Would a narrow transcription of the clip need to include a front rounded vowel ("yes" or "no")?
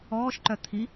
yes